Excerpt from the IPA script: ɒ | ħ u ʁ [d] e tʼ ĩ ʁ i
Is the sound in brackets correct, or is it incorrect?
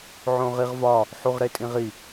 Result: incorrect